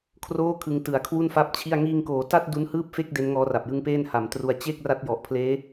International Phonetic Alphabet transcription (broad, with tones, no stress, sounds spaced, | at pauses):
kʰ r oː˥˩ kʰ ɯ˧ ŋ t ɯ˨˩ a̯ kʰ w u˥˩ n f a˥˩ p̚ t͡ɕʰ i˥˩ a̯ ŋ iː˧ ŋ k oː˩˦ t a˥˩ t̚ d u˦˥ n h ɯː˥˩ p̚ f e˥˩ k̚ d e˦˥ n ŋ ɔː˦˥ r a˨˩ p̚ j ɯ˦˥ ŋ p eː˥˩ n h a˩˦ m t r u˧ a̯ t͡ɕ e˥˩ k̚ r a˦˥ t̚ j ɔ˨˩ ʔ pʰ l eː˦˥